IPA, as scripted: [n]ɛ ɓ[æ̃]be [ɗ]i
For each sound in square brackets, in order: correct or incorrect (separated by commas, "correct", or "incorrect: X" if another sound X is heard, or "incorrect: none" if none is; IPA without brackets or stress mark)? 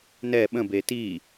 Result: correct, incorrect: ə̃, incorrect: t